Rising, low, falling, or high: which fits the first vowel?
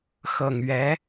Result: low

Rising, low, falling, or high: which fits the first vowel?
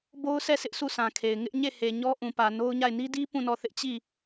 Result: high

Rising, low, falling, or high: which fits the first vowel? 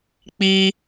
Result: high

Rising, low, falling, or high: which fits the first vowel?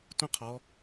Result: high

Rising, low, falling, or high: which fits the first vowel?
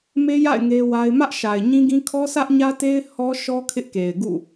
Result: high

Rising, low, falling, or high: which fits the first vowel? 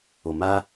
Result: low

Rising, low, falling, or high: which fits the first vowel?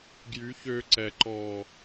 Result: rising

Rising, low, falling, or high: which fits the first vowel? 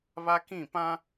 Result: high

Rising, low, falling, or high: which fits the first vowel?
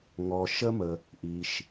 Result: low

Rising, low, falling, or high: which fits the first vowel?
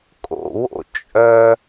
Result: low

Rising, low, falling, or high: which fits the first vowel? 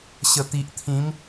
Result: low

